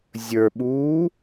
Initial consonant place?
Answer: alveolar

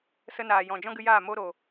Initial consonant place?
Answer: alveolar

